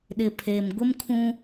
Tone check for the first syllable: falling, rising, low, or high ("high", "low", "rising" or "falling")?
low